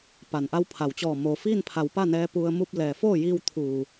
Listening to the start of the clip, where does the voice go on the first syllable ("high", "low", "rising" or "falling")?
low